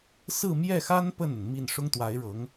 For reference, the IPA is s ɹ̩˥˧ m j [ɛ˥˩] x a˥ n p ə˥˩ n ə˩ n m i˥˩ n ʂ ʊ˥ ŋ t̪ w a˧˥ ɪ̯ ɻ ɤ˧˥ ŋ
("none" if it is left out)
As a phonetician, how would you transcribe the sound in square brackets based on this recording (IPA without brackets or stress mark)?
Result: ɛ˥˩